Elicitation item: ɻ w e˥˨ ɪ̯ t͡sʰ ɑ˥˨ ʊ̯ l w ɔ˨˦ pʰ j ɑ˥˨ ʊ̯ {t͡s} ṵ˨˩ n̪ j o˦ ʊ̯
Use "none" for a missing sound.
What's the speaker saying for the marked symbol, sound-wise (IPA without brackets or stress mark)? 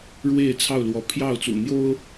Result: t͡s